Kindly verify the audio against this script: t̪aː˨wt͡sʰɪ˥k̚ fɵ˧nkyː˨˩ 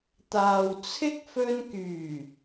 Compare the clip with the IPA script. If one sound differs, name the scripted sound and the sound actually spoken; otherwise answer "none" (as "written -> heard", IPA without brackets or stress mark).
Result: none